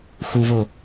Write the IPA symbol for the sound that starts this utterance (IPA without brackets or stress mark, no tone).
x